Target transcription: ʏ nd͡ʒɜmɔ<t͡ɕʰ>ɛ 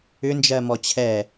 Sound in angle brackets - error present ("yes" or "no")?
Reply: no